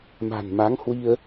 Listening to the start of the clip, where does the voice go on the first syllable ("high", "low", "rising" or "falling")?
low